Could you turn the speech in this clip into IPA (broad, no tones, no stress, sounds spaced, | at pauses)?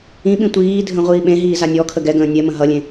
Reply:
ĩ ɓ ĩ tʷ iː dʱ ə̃ ʁʷ iː ɓ ẽ ɦ iː z a nʲ ɔ kʰ ə ɡ ɛ ɡ ə̃ː nʲ ɛ m ə̃ ɦ ʌ lʲ ẽ